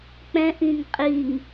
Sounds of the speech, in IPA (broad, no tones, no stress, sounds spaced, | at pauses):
k͡p ɛ̃ ʔ ĩ ŋ qʼ i ŋ